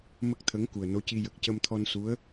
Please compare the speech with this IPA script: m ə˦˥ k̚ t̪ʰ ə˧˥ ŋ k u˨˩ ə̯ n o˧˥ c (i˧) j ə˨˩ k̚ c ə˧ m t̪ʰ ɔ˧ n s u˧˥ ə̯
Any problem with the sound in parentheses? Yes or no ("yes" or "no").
no